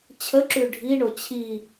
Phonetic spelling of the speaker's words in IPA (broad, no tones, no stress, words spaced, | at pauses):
t͡ɕʰəǁʉ ɖʱiɳo t͡ɕʰi